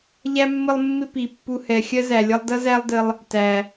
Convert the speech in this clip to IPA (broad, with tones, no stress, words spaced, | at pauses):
ʎæ˥mːə˦lˠmːɪ˦ pi˩pːu˨hɛ˩ xʲɜ˥zæ˩lʲʌ˦lˠ dʌ˥zæ˦lˠdə˨lˠ | tæ˩